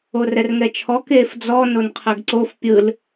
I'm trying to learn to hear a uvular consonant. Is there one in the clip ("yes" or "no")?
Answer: yes